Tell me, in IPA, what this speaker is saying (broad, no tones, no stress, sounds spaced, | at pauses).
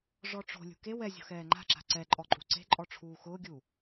ʐ ɔ ʈ͡ʂ o̤ lʲ ṳ k e w ɛ zʲ o̤ x ɛː ŋ͡ǃ a̤ ǁ a̤ ǀ ɛ ǃʼ ɔ ǃʼ ṳ ǀ e̤ ǃʼ ɔ ʈ͡ʂʰ uː x ʊː ɡʲ u